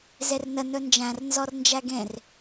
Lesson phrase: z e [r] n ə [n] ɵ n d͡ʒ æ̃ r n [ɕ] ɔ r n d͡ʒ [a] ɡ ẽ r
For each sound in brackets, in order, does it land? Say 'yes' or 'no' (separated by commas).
yes, yes, no, no